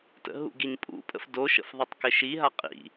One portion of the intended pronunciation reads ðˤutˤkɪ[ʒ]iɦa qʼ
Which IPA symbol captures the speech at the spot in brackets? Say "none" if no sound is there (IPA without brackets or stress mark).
ʃ